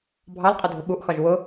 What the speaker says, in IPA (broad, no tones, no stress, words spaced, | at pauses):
bʱɑlqʼʊ dʱʊɓuʔxɒʒ wʊ